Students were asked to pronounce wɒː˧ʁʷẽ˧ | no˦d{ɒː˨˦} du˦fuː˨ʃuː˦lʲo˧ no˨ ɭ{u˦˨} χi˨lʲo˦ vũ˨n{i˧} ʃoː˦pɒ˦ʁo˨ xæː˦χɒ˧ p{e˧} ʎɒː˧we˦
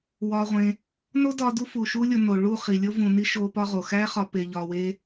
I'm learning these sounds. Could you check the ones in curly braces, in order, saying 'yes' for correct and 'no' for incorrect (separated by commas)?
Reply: no, yes, yes, yes